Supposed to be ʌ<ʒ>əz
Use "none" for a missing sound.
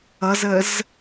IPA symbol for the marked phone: z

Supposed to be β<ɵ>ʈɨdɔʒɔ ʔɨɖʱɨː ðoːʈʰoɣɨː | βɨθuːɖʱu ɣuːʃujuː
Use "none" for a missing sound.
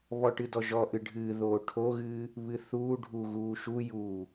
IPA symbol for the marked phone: ɔ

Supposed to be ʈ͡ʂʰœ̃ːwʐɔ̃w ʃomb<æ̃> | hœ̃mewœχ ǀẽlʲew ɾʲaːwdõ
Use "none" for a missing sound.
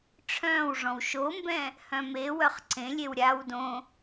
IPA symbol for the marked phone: ɛ̃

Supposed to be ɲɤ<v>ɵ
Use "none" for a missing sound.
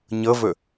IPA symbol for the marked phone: v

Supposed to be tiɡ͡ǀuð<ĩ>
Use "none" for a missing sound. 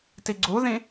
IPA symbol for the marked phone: ĩ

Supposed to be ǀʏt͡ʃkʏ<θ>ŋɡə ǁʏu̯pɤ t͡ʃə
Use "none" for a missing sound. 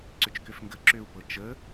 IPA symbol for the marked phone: f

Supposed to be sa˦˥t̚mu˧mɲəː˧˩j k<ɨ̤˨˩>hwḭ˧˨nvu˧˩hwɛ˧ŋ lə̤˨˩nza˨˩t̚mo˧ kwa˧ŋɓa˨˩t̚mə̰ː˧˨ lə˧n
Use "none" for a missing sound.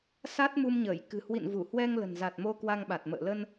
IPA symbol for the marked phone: ɨ̤˨˩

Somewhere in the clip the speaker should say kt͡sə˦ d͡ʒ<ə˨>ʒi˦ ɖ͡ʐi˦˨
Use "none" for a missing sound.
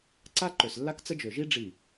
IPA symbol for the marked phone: ø˨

